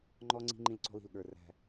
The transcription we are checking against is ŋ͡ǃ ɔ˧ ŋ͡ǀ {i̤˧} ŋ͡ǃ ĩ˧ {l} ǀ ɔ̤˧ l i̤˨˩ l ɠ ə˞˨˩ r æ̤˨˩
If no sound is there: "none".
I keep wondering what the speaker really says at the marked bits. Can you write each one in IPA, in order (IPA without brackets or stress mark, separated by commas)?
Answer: i̤˧, l